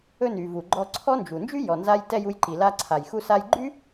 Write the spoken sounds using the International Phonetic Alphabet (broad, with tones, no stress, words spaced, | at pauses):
ɵ˧ny˩ vu˩ɡ͡ǃɔ˧ǀʰɔ˥nd͡ʒu˩ nd͡ʒy˥jɔ˩nza˧jtɛ˧j u˧jǃi˩ la˧ǀʰa˩j xu˧sa˧jɡ͡ǃy˥